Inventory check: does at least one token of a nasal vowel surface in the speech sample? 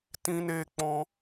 yes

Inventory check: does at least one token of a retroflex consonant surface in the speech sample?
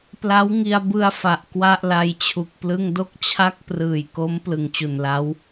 no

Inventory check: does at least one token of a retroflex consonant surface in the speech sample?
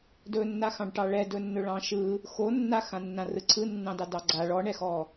yes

